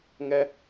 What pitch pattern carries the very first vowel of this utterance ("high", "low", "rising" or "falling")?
high